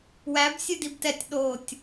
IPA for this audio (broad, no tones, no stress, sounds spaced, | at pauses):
w æ b sʲ ɨ d i b t ɛ tʲ ɗ o tʲ